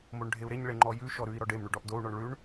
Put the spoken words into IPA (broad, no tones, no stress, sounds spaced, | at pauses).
m o ɳ ɖʱ e u̯ ɾ e ɲ ɭ e ŋ͡ǃ ɔ j ʉ ʃ ɔ ɾ ʉ i̯ ɾ ɔ ɖ e m ɳ ʉ ɖ ɔ ʔ d o u̯ ɳ ɔ ɳ ɭ ʉ ɳ